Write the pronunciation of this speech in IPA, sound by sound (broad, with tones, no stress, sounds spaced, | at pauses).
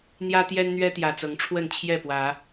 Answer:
n̪ j ä˦ t̪ j ɛ˦ n n̪ ɥ ɛ˦ t̪ j ä˨˩ t͡s ɤ˨˦ ŋ ʈ͡ʂʰ w ə˥˨ n t͡ɕʰ j ɛ˥˨ p w ä˨˦